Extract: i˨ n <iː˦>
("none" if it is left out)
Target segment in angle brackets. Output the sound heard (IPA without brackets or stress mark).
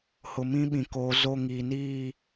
iː˦˨